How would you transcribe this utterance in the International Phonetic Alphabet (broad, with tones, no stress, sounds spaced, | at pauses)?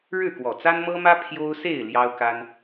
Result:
ɻ ɻ̩˥˨ k w ɔ˨˩ t͡s a˦ n m ɤ˦ m ä˦ pʰ j o˦ ʊ̯ s e˥˨ ɪ̯ l j ɑ˦ ʊ̯ k a˦ n